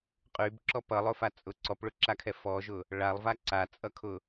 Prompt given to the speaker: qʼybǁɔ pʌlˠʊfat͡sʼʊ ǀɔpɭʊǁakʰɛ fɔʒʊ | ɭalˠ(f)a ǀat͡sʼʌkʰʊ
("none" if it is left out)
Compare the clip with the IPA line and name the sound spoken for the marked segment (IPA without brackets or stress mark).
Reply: v